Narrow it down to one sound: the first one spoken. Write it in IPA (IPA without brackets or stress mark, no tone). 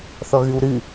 θ